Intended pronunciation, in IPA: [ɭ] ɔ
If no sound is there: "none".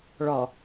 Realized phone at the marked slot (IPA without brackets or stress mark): ɭ